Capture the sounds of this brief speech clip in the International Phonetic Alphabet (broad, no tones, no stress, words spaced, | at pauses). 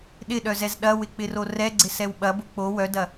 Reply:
ɗɪɗœzɛz ɗɐwɪk͡pɪro rɛɡ͡ǀɪsɛw ɓɐbʊ k͡po wœdɐ